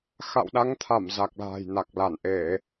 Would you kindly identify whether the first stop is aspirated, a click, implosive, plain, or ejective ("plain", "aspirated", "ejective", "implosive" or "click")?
implosive